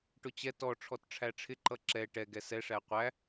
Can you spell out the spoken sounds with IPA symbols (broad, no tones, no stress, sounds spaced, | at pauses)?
ʈ ʊ t͡ɕ ɛ t ɔ ʈ͡ʂʰ ɔ t ʈ͡ʂʰ æ ʈ͡ʂʰ ɪ ǃ ʌ ǁ ɛ ʈ ɛ ɡ ɛ s ɛ ʂ æ qʷ æ